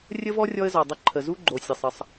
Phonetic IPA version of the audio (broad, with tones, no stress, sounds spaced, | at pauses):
rʲ ə˦ v ɔ˦ rʲ ɔ˦ ə̯ z ɔ˨ dˤ ə˦ ǃʰ ə˨ z u˦ ɡ͡ǃ o˨ sʲ ə˨ sˤ ə˨˦ sˤ